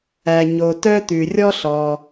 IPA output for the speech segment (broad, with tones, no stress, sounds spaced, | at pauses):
æ˩ ɲ o˩ t œ˧ t̪ ʉ˩ rʲ ɔ˧ ɬ ɔ˩